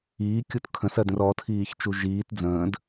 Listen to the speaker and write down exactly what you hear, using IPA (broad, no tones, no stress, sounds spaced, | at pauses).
iː kʲ u t kʰ ə̃ s ɜ d ə̃ r ɔ tʰ iː ç t͡ʃ u ʒ iː t d͡z ə̃ː d